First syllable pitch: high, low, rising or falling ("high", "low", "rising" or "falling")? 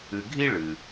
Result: low